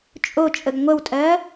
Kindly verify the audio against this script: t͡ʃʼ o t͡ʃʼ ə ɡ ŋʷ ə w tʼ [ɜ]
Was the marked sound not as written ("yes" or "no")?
no